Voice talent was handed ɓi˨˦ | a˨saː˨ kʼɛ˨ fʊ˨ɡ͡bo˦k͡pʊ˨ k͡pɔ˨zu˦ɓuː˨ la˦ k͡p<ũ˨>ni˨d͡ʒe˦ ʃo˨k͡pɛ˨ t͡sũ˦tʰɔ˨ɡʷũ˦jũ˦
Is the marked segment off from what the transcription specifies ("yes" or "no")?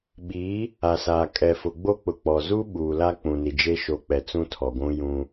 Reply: no